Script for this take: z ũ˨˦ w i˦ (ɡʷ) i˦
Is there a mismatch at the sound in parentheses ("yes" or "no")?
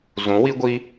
no